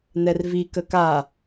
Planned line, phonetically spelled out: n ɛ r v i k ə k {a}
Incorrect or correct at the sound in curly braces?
correct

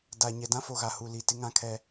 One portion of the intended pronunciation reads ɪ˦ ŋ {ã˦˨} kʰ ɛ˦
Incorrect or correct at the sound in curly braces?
incorrect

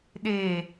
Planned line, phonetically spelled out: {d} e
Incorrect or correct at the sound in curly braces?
incorrect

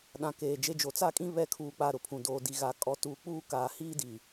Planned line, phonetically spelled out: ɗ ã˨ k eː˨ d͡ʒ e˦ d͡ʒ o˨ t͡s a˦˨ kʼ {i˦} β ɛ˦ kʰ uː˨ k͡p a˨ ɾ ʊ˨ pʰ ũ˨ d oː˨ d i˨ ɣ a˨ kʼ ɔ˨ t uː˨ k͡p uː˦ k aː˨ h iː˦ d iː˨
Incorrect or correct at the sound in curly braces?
incorrect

